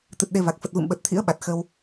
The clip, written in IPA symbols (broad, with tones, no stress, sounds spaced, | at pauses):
t̪ ɨ˨˩ t̚ ɗ e˧ v a˨˩ k̚ f ə˨˩ t̚ v ɨ̰˧˨ m ɓ ə˨˩ t̚ t̪ʰ ḭ˧˥ ə̯ ɓ a˨˩ t̚ x ə˧ w